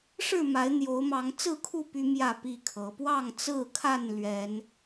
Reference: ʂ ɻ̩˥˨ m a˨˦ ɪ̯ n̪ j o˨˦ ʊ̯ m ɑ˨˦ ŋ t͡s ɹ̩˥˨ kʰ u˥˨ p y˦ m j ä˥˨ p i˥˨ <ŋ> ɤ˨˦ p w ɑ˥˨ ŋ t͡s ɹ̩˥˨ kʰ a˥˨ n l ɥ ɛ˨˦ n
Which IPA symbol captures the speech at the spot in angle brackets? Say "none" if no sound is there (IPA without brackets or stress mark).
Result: kʰ